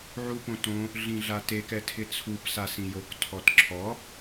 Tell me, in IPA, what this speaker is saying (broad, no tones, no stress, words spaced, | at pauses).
ʕupõtõ | ɮĩɮatek ɛtʰɪt͡sʰup sasĩjok tʰɔtǁʰɔ